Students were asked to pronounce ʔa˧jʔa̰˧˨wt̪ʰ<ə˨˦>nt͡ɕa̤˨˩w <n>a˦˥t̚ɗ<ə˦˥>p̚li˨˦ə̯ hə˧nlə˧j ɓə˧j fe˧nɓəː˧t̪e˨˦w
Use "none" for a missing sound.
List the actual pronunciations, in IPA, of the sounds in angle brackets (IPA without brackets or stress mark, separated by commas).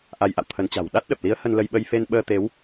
ə˨˦, ɗ, ə˨˩